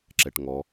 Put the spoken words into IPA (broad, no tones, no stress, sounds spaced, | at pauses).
ǁ ɛ ʈ ŋ ɔ